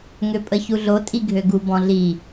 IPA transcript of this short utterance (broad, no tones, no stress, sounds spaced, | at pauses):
ŋ ø pʼ ə ç u ɮ o tʼ i ɡʱ ø ɡ u b ɔ̃ ɮ i